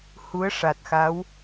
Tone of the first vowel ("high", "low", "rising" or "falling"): rising